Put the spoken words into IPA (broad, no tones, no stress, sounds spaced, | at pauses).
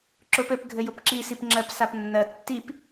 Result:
ǁ ʊ p ɘ p ɡʱ ɘ j ʊ p ǁ i s i p ŋ͡ǁ ɜ p s a p nː ɜ tː i p